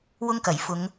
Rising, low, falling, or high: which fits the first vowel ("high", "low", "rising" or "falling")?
high